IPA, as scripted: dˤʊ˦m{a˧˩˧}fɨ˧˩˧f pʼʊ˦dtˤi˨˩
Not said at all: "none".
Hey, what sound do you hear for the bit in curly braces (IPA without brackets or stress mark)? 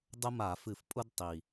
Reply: a˧˩˧